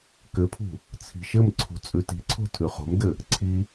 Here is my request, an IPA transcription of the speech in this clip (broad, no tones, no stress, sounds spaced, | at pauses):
k ɘ pʰ ṳ | t͡sʰ i̤ ʃ ɘ m ǀʰ ṳ t͡sʼ ʉ t i̤ ǀʰ o̤ tʰ ʉ χ o̤ m d ɘ | ǀʰ i